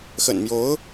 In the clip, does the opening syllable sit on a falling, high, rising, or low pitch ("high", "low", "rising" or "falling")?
low